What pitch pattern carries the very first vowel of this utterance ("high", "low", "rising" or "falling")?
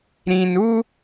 low